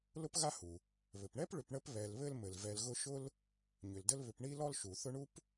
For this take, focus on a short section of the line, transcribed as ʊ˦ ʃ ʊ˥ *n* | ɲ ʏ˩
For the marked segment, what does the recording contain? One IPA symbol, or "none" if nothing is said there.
l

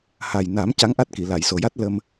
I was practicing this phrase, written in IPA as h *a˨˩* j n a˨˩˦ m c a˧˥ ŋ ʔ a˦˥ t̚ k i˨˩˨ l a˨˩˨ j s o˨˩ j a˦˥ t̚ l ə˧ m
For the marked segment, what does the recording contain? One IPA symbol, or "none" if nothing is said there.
a˨˩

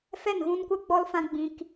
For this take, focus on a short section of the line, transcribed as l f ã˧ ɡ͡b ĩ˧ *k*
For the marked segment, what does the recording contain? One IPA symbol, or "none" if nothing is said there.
k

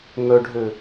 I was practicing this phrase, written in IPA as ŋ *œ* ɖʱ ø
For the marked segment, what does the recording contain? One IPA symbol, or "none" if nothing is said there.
œ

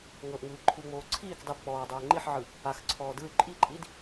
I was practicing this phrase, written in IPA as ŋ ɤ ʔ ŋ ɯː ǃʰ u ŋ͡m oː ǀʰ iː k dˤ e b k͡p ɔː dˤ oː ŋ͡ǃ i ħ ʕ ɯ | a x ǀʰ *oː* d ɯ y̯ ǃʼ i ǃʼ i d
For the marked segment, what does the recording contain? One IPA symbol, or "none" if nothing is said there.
ɔː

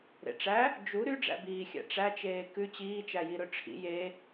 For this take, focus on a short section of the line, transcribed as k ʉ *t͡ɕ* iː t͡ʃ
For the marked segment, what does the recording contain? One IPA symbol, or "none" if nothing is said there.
t͡ɕ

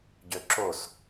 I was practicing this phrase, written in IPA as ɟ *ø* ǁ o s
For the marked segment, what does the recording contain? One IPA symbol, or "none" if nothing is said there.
ø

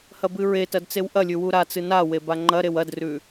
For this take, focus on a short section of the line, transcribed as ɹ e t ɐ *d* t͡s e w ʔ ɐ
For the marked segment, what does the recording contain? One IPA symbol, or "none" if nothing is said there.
d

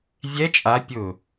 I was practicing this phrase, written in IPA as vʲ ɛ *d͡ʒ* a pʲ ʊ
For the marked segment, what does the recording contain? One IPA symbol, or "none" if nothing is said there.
t͡ʃʼ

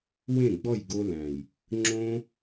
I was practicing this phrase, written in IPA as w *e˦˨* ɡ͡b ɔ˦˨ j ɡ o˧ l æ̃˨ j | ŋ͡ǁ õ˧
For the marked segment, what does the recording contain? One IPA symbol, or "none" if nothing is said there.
ẽ˦˨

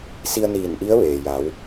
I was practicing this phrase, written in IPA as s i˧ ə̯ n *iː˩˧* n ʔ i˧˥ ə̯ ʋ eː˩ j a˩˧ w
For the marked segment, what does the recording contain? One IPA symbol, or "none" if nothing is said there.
iː˧˩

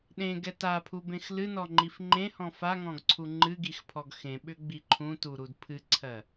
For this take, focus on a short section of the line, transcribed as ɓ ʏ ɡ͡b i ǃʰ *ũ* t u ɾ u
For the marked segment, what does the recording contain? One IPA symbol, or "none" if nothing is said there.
ũ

